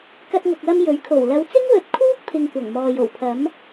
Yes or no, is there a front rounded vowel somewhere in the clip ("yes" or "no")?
no